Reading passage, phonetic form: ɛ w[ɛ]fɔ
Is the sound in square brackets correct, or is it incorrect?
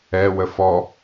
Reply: incorrect